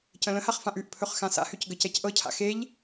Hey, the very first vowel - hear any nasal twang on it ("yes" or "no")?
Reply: yes